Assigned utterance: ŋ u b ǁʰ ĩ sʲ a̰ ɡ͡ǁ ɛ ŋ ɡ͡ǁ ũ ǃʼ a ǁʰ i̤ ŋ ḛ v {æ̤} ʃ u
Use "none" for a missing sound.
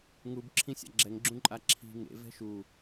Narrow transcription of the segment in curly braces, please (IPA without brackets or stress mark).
ɛ̤